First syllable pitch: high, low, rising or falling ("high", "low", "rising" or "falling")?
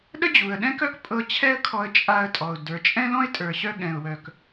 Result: high